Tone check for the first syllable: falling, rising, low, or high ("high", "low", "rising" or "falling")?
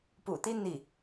low